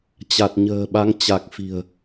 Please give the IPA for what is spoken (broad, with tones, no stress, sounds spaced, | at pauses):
t͡ɕ a˨˩ t̚ ɲ ə̤ː˨˩ ɓ a˨˦ ŋ t͡ɕ a˨˩ k̚ f i̤˨˩ ə̯